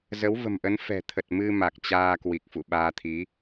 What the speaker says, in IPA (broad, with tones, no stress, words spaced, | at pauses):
zə˨˦wvə̤˨˩mʔə˨˦n fɛ̤˨˩t̪ʰə˨˩t̚ mɨ˧ma˨˩k̚ t͡ɕaː˧kwi˨˩k̚fṵ˧˨ ɓaː˧t̪ʰi˨˦